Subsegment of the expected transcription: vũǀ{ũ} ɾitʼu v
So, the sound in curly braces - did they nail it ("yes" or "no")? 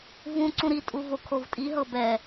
yes